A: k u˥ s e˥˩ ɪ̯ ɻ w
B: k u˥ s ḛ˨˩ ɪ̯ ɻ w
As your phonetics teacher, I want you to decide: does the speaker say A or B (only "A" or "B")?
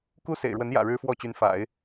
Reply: B